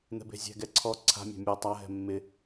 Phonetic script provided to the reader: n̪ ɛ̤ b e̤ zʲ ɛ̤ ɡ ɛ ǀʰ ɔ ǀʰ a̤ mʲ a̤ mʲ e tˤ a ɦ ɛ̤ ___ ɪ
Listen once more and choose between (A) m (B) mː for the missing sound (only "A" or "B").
B